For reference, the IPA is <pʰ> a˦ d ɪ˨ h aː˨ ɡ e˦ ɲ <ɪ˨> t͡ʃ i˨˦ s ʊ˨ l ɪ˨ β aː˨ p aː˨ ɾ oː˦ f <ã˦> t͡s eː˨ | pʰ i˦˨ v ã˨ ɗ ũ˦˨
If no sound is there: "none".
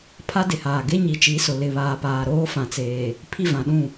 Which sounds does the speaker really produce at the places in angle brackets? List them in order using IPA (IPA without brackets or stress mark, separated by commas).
pʰ, i˨, ã˨